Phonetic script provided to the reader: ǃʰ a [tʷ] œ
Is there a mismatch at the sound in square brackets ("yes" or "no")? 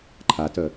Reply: yes